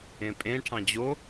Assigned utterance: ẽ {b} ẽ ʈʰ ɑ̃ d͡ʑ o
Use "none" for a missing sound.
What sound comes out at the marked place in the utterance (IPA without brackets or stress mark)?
pʼ